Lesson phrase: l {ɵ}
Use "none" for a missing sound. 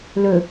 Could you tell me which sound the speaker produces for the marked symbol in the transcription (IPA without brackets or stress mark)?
ɵ